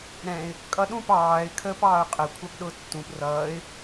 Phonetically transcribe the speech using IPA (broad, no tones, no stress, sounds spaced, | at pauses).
ɾ ɛ̃ ɪ̯ | kʼ ʌ ɗ ũ p ɑː ɪ̯ kʰ əː p ɑː ʊ̯ qʼ ə kʷʰ ɑ p ɗ ʊː tː ũ p r ʌː ɪ̯